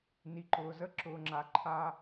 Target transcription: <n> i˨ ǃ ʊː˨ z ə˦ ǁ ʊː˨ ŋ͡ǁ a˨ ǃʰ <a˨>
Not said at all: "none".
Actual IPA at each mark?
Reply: n, a˦

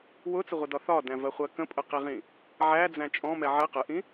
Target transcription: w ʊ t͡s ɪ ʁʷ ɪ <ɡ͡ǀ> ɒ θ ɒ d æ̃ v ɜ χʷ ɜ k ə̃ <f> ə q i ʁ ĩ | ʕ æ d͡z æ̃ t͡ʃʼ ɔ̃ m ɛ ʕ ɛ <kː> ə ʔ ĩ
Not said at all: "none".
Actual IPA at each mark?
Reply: d, pʼ, q

